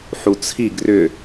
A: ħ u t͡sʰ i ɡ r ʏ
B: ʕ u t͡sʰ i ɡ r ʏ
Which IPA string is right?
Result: A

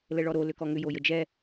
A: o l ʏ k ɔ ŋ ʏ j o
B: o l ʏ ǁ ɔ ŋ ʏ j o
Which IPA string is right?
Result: A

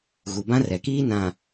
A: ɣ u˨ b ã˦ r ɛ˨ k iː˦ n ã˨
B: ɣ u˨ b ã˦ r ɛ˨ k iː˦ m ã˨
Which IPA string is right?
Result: A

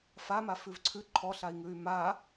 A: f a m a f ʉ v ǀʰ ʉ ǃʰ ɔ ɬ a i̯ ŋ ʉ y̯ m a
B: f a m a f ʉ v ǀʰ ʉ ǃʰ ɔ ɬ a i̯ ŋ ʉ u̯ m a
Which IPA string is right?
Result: A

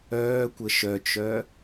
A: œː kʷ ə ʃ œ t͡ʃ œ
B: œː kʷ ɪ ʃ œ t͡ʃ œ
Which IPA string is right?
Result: A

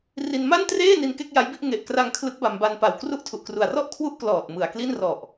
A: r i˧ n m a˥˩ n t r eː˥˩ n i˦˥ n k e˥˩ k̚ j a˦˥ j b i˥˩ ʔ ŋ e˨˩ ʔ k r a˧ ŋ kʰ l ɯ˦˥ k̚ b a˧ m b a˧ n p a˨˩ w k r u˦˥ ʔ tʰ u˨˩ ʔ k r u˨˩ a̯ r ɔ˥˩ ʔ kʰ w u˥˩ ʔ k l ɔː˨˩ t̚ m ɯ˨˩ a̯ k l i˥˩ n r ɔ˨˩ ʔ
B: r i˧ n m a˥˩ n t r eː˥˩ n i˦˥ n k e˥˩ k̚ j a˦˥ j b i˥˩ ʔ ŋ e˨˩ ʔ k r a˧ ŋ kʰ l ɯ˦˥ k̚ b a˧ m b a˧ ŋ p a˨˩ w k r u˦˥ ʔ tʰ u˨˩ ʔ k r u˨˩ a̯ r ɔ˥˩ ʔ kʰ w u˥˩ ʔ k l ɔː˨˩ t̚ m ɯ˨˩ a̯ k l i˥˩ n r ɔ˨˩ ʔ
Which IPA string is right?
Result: A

